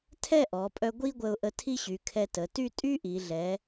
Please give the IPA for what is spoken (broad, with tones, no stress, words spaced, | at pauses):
tʰɛ˥˧ʔɔ˩˧pʼœ˧ ɡʷi˥ ɡʷə˧ʊ̯ʔə˧ tʰi˥ɕy˩˧kʰɛ˧tə˩˧ ty˥˧tʼy˥ʔi˩˧ɮɛ˩˧